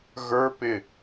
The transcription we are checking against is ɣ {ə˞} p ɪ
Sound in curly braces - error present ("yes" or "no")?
no